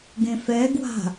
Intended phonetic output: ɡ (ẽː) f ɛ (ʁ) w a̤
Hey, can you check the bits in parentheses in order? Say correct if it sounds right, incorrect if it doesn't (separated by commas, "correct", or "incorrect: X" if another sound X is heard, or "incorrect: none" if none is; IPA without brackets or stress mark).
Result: incorrect: ẽ, incorrect: ɡ